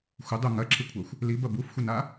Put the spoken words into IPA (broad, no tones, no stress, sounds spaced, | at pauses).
xʷ ɪ dˤ u ŋ ɐ ǁʰ ɪ kʷʰ a xʷ | l i b ɐ b u f xʷ ɐ n a